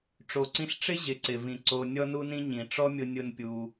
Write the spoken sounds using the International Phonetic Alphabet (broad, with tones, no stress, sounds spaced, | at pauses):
ʈ͡ʂ o˨ ǀ ĩ˧ ɬ ʈ͡ʂ ɪ˦ ʑ ɪ˨ ǀ ɪ˨ v ĩ˨ ǀ o˧ nʲ ɔ˦ n u˦ n ĩ˦ ɲ ĩ˨ ʈ͡ʂ ɔ˦ mʲ ʊ˧ nʲ ʊ˦ n pʲ u˧